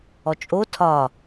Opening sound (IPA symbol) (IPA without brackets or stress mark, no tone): ɔ